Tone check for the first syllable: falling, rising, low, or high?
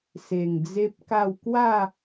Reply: low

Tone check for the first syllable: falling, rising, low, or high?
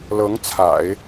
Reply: rising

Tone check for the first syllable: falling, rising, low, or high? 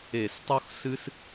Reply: low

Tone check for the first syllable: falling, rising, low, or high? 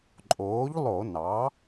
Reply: rising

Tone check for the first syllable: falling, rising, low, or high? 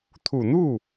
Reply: low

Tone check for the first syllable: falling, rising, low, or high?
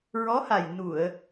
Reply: rising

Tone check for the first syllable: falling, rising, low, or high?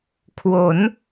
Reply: rising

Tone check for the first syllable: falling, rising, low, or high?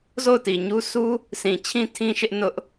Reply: falling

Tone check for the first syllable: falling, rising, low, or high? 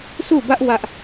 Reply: falling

